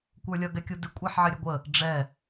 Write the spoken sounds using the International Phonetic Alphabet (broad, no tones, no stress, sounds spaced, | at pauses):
kʷ ə˞ lʲ ʌ ɡ ɛ kʲ u d ɪ kʷʼ æ ħ ʕ ɪ ɾʲ ɛ ɡʷ ə | ɖ͡ʐ ɛ